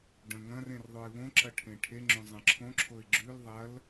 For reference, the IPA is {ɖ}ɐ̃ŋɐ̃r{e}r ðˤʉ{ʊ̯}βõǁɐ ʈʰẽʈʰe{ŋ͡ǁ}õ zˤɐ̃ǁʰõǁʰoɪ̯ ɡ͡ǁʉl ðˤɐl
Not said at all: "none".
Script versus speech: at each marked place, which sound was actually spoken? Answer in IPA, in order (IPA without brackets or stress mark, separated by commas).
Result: ɖ, ẽ, ɪ̯, ŋ͡ǁ